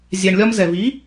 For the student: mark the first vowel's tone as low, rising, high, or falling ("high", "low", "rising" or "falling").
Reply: low